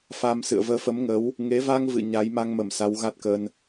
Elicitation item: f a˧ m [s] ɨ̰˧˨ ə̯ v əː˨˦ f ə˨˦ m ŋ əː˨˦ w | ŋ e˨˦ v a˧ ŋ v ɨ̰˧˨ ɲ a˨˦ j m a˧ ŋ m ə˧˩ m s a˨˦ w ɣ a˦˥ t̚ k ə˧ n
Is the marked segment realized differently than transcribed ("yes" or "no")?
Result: no